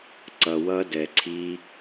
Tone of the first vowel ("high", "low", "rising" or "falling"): low